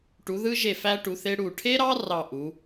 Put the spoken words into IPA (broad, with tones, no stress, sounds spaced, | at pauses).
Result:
ʈ u˨˦ ð ɯ˥ ʒ e˦˨ f æ˥ ʈ u˨˦ θ e˥ ɽ u˦˨ ʈʰ e˥ ɾ ɑ˥ r ɑ˦˨ ʔ u˨˦